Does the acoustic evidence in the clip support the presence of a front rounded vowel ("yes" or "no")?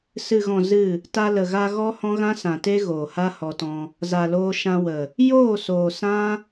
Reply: no